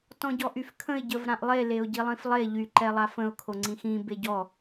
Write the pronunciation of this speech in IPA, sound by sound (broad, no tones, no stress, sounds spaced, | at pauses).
t ɔ̃ ɟ ɔ ʔ y f kʰ ə̃ ɪ̯ ɟ ə v ɾ ã ʔ lˠ e l e ʊ̯ ɟ i lˠ ĩ f lˠ e ʎ y ǃ ɛ lˠ a f ə̃ ʊ̯ kʰ o ŋ͡ǀ ĩ x ĩ b e ɟ ɔ